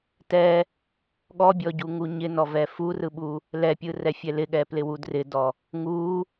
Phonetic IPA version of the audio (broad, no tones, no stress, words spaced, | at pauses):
tɛ | ɠɔbʲɔɟuŋu ɲɪnɔvɛ furɯɓu | lɛpʲɯrɛfʲɛ lɪɠɛplɪwu drɪdɔ | ŋu